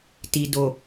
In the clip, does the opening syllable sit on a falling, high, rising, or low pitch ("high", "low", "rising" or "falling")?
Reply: low